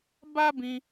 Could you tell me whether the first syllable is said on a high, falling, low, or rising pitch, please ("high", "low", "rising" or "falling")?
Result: high